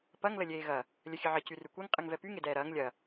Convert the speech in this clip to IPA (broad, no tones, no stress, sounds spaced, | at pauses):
p ɐ ŋ l ə lʲ eː ɣ ɐ | lʲ ə xʲ ɨ ʕ ə c y r y kʷ e ŋ qʼ ɨ ŋ v ɛ p y ŋ e d ɛː ɾ ɐː ŋ lʲ ɐ